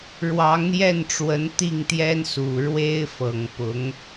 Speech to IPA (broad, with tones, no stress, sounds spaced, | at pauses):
ɻ w ɑ˧˥ ŋ n̪ j ɛ˥˩ n ʈ͡ʂ w ə˧˥ n t̪ i˥˩ ŋ t̪ j ɛ˥ n s u˨˩ ɻ w e˥ ɪ̯ f ɤ˨˩ ŋ p ʊ˧˥ ŋ